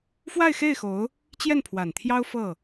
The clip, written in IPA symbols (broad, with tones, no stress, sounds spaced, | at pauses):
f w a˥˧ ɪ̯ x e˥˩ ɪ̯ x o˧˥ ʊ̯ | t͡ɕ j ɛ˥˩ n pʰ w a˨˩ n t̪ʰ j ɑ˥ ʊ̯ f ɤ˥˩